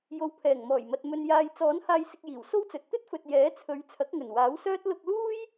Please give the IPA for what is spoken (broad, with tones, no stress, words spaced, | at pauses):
jo˨wpʰɛː˨˩ŋmɔː˨˩jmɐ˨t̚ mɵ˨njaː˨j t͡sɔː˨˥n haː˧jsɪ˧k̚jiː˨˩w so˥wt͡sɵ˨t̚ t̪ɵ˥t̚fɵ˨t̚ jɛː˨˥t͡sʰɵ˨˧ɥ t͡sʰɐ˨˥k̚ŋɵ˨˩n waː˨˥wsœː˥t̚ lʊ˧k̚luː˥j